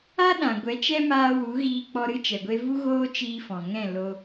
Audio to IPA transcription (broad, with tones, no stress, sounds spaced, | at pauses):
a˦ ɗ ã˨ ɡʷ ɛ˨˦ t͡ʃ ɛ˦ m aː˧ w u˨˦ ɣ iː˧ k͡p ɔ˧ ɾ ɨ˦ t͡ʃ ɛ˨ ɡʷ e˧ v u˦ ɣ oː˦ t͡ʃ iː˧ f ɔ̃˨ ŋ ɛ̃˦˨ l o˧